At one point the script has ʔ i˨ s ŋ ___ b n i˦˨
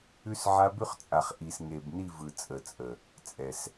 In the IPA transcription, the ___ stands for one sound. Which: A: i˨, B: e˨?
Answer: B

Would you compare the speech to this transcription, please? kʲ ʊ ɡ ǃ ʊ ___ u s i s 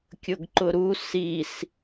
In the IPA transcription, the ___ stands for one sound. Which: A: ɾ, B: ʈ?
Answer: A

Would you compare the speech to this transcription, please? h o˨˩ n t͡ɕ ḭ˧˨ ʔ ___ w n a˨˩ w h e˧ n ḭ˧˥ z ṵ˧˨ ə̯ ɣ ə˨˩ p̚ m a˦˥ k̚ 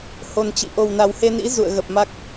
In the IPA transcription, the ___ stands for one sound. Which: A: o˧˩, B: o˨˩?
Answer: B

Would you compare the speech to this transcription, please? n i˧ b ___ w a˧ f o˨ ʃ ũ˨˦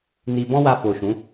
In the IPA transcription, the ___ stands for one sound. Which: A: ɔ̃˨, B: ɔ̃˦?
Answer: B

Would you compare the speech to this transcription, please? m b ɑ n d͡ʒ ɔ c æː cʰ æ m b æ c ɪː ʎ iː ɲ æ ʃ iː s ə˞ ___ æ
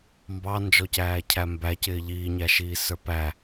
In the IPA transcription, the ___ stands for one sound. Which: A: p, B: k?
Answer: A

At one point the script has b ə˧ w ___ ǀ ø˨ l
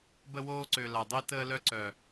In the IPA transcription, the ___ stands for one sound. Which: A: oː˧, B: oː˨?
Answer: A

